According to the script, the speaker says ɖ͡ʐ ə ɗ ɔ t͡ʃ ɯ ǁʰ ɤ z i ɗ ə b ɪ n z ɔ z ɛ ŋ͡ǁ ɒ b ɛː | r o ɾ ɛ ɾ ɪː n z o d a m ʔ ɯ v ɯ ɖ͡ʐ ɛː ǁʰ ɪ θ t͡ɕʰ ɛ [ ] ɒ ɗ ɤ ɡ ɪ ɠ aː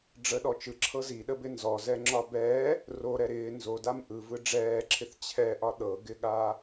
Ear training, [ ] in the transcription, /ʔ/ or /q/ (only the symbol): ʔ